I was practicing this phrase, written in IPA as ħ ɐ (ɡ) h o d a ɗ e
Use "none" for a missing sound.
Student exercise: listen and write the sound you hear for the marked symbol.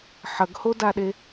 ɡ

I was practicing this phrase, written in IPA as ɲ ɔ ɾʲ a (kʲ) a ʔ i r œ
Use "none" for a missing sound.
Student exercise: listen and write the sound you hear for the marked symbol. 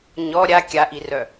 kʲ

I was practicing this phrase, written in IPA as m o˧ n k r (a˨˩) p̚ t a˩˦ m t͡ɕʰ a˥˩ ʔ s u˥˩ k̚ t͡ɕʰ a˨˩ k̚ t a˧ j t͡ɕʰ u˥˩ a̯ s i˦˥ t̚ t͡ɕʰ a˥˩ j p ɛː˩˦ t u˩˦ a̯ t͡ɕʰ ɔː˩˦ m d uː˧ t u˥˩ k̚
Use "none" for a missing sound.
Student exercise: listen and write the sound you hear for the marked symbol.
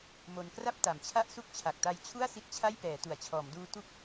a˥˩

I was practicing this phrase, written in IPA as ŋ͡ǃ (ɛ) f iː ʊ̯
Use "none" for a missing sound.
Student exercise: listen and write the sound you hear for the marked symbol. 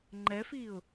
ɛ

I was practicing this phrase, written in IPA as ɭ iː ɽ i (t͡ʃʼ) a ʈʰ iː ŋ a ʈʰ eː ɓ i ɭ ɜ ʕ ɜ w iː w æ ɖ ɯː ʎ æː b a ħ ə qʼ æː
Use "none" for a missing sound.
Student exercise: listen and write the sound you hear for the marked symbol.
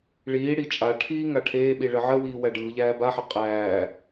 t͡ʃʼ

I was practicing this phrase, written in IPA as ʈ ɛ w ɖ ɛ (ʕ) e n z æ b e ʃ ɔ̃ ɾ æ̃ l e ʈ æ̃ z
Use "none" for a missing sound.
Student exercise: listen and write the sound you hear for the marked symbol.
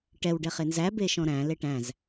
χ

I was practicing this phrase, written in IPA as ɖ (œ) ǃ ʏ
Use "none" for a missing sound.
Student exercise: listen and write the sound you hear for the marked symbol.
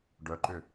œ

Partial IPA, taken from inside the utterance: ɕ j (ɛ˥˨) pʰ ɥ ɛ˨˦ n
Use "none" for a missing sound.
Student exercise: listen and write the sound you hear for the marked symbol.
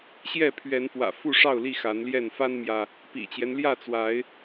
ɛ˥˨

